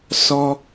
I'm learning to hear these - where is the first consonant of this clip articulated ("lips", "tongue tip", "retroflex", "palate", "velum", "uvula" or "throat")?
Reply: tongue tip